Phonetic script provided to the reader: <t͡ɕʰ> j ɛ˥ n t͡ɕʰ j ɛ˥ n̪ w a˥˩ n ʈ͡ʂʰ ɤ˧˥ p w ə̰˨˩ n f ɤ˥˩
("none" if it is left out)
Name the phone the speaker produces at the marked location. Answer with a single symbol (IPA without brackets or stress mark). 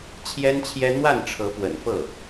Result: t͡ɕʰ